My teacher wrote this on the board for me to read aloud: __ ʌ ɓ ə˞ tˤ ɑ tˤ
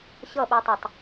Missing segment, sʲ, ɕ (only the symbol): ɕ